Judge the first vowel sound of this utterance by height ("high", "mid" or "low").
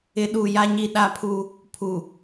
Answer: high